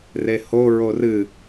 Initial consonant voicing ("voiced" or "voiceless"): voiced